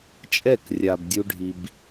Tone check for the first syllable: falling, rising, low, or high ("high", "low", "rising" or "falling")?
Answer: falling